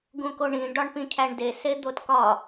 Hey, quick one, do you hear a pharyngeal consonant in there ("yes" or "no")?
no